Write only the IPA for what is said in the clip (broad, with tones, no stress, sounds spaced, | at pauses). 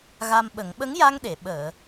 ɣ a˧ m ɓ ə˨˩˦ ŋ ɓ ə˧˥ ŋ j a˧ ŋ ɗ e˨˩˨ ɓ əː˨˩˨